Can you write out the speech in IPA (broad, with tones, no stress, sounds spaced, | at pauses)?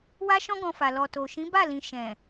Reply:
w a˦ ʃ ɔ̃˦ ɡ ɔ̃˧ f a˨ l ɔ˨ t o˨ ʃ ĩ˨˦ b a˦˨ l ĩ˨ ʃ ɛ̃˨